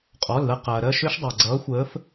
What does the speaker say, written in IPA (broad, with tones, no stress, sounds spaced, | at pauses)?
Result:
qʼ ɔ˩˧˩ l ð ɐ˦˨ q ɐː˩ ɾ ɜ˦˨ ʃ ø˦˥ ʃ dˤ a˩ ɡ͡ǀ ʌː˨˥ xʷ əː˨˥ f